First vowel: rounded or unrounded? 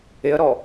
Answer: unrounded